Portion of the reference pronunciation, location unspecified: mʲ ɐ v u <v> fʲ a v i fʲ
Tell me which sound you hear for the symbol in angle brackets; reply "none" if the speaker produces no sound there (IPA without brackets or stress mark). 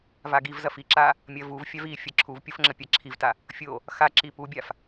v